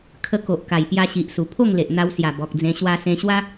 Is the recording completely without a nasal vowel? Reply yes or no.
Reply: no